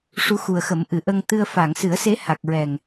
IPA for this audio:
ʂ u˧˥ x u˨˩ ə̯ x ə˨˩˦ m ʔ ɨ˨˩˨ ʔ ə˧ ŋ t̪ ɨ˧ ə̯ f a˨˩˨ ŋ s ɨ˨˩˦ ə̯ s e˧˥ h a˨˩ k̚ ɹ ɛ˨˩ ŋ

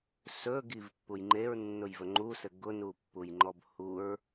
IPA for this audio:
s ɵ ɡ i v pː u j ŋ͡ǃ e ɹ nː ʊ j v ɵ ŋ͡ǃ u s ɘ ɡ ʊ n u pː u j ŋ͡ǃ ɔ b h u ɹ

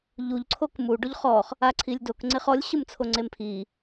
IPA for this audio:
ʎ u ʎ ǀʰ o k m u ɖ o ʎ χ ɔ χ | a ǀʰ i lʲ d o k ŋ͡ǀ e χ ɔ lʲ ɕ ɯ m t͡sʰ o ŋ͡ǀ e m pʰ i

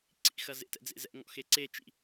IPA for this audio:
ǀ ḭ x ɐ z ḛ t ɛ̰ d͡z ḛ z ɛ̰ ŋ ɔ̰ x e ǀ e t͡ʃ ḭ

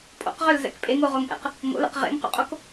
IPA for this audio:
pʼ o̰ q ʁ ø l z ɛ̰ k pʼ e ŋ o ʁ o ŋ ʔ ɛ̰ q | ŋ o̰ l ɛ̰ q ʁ ḛ ŋ q o̰ qʼ o k

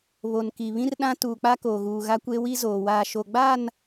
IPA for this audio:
β o˨ n k i˨ β ĩ˦ r ɗ ã˦ t uː˨ k͡p a˦ k oː˨ ɣ uː˨ ɣ a˦ kʷ e˦ w i˦ z oː˨ w aː˨ ʃ o˨ ɡ͡b aː˦˨ n

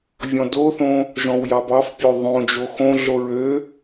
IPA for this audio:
vʲ ɔ̃ d o θ õ | ʒ ɔ̃ w j ɑ b ɑ f pʲ o ðˤ õ d͡ʒ o x õ ɮ o ɹ ø

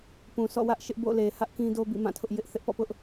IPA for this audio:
p ũ˨ sʰ ɔ̰˦˨ w ä˦ ʔ ʃ ɪ˦ ʔ b o̰˦˨ l e˨ h ä˦ ʔ k ĩ˦ d o˦ b ḭ˦˨ m ã˦˨ tʰ ʊ˦ ʔ j ɪ˦ ʔ θ ɪ˦ ʔ p ɔ̰˦˨ p ʊ˦ ʔ

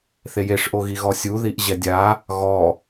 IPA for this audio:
θ e j e ʂ ʔ o ɣ i ɣ ɔ sʲ u ð i ʔ ʑ ɛ dʲ a | ɣ ɔ

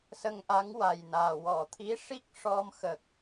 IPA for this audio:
s ə˧ ŋ ʔ a˧˥ ŋ w a˨˩ j n aː˨˩ w ɔ˨˩˨ t̪ʰ i˧˥ ʂ i˦˥ k̚ ʂ ɔ˧ m x ə˨˩ k̚

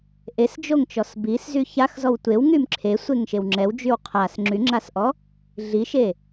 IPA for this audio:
ʔ e s d͡ʒ o ŋ t͡ʃ ɔ s b i s z y ç a x z ɔ w tʷ e w ŋ y m ǁʰ e sʷ e ŋ ʃ e w ŋ͡ǁ ɛ w d͡ʒ y w qʰ a s ŋ͡ǁ y ŋ͡ǁ a s ʔ ɔ | ɮ i ʃ e

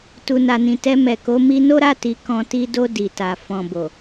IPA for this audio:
t u˨ n a˨ n ĩ˨ t ɛ˧ m ɛ˨ k o˨˦ m i˧ n o˦ ɾ a˦˨ t i˨ k ɔ̃˧ t i˧ d o˧ d i˨ t a˨ f ɔ̃˨ b o˨

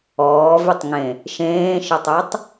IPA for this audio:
ɔː v y tˤ ŋ ẽ | ʃ ẽː ʃ ə tˤ ø tˤ

